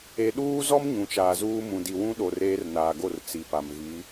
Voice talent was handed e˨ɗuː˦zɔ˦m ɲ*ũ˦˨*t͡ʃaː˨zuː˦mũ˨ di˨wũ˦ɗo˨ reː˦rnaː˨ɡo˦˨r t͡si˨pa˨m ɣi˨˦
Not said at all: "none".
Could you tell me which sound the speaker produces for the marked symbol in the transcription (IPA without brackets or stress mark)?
ũ˨